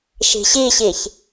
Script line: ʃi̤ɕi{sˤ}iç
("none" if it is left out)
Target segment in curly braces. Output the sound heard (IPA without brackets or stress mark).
ɕ